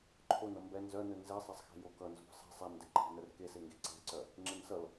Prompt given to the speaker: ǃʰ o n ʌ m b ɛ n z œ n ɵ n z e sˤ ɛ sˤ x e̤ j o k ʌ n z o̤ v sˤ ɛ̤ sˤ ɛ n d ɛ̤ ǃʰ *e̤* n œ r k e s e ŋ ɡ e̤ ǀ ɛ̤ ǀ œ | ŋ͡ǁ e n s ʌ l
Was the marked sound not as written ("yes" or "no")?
yes